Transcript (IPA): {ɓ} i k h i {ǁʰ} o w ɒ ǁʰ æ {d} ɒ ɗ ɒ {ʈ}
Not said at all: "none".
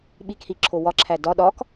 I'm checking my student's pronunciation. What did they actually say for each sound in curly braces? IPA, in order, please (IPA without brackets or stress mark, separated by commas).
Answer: ɓ, ǁʰ, d, k